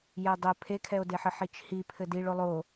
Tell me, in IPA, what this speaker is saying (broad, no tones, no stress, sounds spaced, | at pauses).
j ɛ dˤ ɘ pʰ e kʰ ɛ o̯ d e ħ ɘ ħ i t͡ʃ h i pʰ ɘ d i ɭ o lˠ o